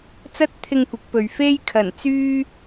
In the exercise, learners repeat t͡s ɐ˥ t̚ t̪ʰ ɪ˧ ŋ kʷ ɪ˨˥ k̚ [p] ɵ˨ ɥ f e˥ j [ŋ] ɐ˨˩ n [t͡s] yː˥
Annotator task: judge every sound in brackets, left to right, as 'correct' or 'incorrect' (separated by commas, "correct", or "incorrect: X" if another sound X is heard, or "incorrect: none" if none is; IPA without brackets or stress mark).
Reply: correct, incorrect: kʰ, correct